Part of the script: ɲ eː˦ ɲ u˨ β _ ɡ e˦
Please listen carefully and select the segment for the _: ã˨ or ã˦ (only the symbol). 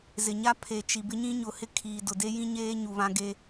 ã˦